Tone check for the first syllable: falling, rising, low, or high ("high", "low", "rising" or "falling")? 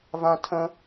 high